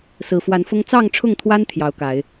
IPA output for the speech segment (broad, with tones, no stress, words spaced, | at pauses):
sɹ̩˨˩fwa˨˦nfʊ˦ŋ t͡sɑ˥˨ŋʈ͡ʂʰʊ˥˨ŋt̪ʰwa˦n t̪ʰjɑ˨˦ʊ̯ka˨˦ɪ̯